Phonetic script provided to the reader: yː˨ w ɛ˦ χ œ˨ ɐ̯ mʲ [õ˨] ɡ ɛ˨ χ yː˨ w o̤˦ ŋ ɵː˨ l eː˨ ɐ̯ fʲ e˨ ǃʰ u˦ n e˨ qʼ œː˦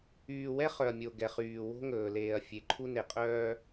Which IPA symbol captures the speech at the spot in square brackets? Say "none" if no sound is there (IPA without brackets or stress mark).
o˨